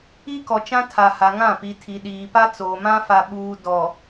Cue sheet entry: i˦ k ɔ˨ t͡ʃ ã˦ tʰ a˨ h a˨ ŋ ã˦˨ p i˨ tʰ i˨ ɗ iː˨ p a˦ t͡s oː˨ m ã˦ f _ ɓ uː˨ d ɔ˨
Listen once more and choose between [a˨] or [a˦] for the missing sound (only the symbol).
a˨